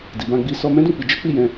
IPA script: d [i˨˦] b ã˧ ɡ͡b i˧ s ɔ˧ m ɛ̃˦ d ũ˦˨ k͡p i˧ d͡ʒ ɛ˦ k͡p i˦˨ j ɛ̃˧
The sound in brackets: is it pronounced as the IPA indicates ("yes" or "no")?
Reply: no